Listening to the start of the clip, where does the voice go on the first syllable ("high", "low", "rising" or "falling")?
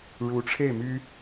rising